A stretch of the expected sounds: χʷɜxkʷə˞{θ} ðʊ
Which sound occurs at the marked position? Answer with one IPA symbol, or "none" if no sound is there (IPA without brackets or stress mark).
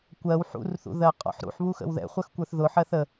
θ